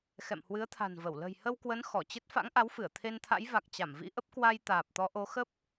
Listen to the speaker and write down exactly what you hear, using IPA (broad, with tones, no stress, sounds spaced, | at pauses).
x ɛ̰˧˨ m h w ɨ˨˦ ə̯ t̪ʰ a̤˨˩ n v ə˧˩ w l ə̤˨˩ j h ə˧ w k w ə˨˦ n x ɔ˧˩ t͡ɕ ə˦˥ t̚ f a̰˧˥ ŋ ʔ a˨˦ w f ɨ˧˩ ə̯ t̪ʰ e˧ n t̪ʰ a̰˧˥ j v a˨˩ k̚ t͡ɕ a˧˩ m v ḭ˧˥ ʔ ə˦˥ p̚ k w a˧ j t̪ aː˨˩ p̚ t̪ ɔ˨˦ ʔ o˨˦ x ə˦˥ p̚